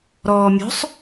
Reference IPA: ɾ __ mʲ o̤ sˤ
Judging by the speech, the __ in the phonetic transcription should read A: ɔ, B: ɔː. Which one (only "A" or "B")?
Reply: B